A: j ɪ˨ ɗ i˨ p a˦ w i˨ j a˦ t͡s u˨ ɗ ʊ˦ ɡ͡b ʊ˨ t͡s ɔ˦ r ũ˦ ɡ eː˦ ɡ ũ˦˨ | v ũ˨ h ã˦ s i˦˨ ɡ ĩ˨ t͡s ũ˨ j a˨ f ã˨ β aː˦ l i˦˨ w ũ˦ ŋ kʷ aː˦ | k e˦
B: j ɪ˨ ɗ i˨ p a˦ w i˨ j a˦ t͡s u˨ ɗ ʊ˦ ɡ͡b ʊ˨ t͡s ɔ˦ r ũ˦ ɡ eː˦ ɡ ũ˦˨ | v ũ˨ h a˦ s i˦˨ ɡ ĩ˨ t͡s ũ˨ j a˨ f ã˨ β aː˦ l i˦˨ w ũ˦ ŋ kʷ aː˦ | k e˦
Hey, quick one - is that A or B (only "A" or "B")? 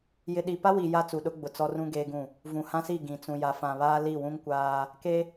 A